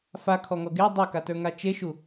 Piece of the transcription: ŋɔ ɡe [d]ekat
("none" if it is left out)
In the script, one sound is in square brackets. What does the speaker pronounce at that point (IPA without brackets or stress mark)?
dˤ